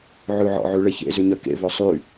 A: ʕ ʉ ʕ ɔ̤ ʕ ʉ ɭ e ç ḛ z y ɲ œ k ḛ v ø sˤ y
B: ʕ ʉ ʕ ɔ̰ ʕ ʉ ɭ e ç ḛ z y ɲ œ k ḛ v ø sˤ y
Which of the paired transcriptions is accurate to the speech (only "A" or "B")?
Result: B